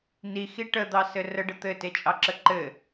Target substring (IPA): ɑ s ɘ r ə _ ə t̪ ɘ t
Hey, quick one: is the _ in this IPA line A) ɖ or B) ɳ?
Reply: A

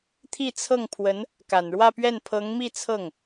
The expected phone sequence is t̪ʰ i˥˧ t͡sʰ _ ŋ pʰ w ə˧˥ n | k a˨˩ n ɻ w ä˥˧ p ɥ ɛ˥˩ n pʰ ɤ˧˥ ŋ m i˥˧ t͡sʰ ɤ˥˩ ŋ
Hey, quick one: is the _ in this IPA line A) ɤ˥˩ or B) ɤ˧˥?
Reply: A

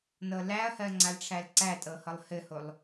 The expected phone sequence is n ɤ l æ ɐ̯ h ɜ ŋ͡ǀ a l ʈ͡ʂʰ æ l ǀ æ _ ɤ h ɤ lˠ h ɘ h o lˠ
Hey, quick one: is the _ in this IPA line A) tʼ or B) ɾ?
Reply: A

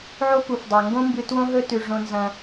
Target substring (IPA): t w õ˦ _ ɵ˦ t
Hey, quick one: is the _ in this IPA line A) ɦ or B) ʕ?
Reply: A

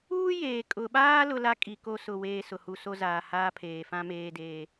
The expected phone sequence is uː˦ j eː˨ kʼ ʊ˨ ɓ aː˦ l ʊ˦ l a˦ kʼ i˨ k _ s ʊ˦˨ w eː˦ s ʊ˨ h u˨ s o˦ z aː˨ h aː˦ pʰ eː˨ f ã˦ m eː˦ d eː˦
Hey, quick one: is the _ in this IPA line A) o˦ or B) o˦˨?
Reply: B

